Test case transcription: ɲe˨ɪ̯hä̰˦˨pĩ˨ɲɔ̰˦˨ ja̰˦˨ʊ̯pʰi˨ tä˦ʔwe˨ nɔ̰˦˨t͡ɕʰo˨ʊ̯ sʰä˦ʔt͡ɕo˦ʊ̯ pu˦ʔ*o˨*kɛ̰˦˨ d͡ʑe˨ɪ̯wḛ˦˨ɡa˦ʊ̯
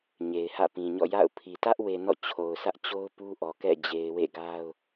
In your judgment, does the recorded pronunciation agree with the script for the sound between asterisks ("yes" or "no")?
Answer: no